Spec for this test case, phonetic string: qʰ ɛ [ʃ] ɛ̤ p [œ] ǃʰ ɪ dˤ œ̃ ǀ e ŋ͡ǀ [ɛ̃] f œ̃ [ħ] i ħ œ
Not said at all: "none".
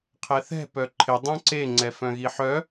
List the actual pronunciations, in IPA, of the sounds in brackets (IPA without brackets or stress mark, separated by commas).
θ, œ, ɛ, ɣ